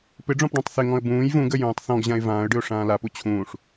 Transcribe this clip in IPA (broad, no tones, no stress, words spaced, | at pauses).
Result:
pɪɖ͡ʐɔ̃pɖɔ̃tˤ θɪŋɔ̃ə̯ bũːj vũɡə jũːtˤθɔ̃ɡʑãɪ̯ vãːə̯ɖɨʊ̯ ʂãːlapu t͡ɕʰũːʂ